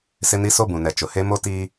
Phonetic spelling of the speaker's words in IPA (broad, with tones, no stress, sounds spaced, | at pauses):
s ɪ˦ n i˦ s o˦ b ũ˨ n ɛ˨ t͡ʃ ʊ˨ h e˦ m o˦ t iː˦